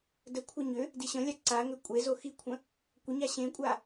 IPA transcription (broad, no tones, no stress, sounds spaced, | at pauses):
d ə kʷʰ a ɲ ʏ | d i ɕ ə̃ lʲ a ǀ a ŋ ʏ kʷʼ e z o x i kʷʰ ə̃ | kʷ ə ɲ a ɕ ẽ kʷʼ a